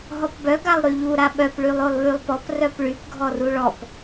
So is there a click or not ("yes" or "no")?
no